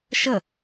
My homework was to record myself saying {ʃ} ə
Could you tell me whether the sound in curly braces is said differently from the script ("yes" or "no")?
no